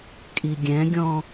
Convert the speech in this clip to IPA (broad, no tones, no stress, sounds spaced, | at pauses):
kʼ i ɡʲ ɛ̃ ɡʲ ɔ̃